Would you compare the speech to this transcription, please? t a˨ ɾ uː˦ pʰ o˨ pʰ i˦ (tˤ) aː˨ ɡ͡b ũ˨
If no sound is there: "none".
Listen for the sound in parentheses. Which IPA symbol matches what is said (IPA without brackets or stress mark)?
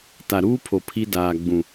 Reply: d